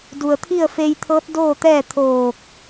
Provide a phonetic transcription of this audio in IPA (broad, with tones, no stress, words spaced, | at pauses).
du˩ə̯t̪ʰi˥˨ə̯feː˧jt̪ʰɤː˧˥t̚ doː˥˨t̪ɛː˥˨ t̪ʰoː˧˩k̚